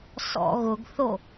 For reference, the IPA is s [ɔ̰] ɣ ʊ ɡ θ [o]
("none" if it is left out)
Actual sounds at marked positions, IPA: ɔ̰, o

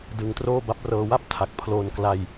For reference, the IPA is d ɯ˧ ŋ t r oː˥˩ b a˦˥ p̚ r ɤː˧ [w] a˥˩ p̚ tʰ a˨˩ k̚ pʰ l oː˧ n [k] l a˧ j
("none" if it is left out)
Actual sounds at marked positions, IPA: w, k

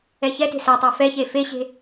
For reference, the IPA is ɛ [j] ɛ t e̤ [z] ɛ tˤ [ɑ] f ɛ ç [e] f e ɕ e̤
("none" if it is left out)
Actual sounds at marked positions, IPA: ç, s, a, e

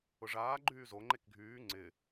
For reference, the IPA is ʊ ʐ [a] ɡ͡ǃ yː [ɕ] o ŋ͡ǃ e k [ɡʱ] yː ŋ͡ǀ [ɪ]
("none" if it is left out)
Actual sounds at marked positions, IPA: aː, z, ɡʱ, ɪ

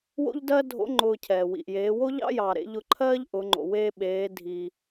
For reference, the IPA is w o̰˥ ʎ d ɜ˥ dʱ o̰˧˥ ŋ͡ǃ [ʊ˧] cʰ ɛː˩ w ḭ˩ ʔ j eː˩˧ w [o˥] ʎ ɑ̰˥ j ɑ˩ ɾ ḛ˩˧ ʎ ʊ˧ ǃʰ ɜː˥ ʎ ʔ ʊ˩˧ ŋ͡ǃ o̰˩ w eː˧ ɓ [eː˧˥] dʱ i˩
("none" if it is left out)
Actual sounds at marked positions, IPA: ʊː˧, o˥, eː˩˧

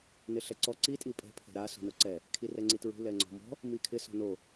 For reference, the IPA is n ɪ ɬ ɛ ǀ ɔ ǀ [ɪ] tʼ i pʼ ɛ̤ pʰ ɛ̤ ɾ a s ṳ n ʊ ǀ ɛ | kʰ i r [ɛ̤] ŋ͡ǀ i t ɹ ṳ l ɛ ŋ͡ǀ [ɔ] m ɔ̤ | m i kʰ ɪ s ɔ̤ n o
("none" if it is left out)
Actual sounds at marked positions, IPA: i, ɛ, ɔ̤

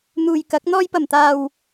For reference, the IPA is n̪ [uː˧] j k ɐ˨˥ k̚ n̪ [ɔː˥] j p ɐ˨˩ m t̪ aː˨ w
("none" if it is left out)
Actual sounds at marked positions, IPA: uː˨, ɔː˧

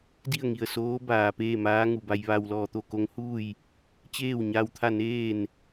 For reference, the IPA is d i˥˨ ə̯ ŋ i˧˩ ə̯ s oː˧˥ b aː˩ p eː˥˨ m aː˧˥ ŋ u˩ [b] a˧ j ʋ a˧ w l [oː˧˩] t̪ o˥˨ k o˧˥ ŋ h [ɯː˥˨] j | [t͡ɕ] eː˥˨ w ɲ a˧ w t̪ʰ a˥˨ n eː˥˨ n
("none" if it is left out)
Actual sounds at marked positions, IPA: b, ɔː˧˩, uː˥˨, t͡ɕ

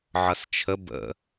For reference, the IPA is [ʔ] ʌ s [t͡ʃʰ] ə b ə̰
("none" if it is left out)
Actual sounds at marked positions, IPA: ʕ, t͡ʃʰ

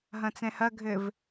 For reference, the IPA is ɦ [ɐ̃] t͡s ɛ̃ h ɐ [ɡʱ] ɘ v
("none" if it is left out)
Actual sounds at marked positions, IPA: ɐ̃, ɡʱ

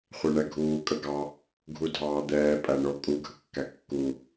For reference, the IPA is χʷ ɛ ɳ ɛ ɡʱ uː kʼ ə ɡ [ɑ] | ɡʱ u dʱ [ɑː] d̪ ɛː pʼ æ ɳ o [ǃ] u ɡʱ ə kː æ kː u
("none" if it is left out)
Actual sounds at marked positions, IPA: ɑ, ɑː, kʼ

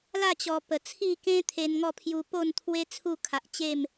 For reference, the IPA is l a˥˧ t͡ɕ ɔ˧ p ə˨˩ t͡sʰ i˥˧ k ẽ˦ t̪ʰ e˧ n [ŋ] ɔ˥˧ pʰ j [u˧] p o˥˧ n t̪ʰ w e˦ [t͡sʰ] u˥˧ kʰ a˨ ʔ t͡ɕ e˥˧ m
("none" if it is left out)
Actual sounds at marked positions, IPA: ŋ, u˧, t͡sʰ

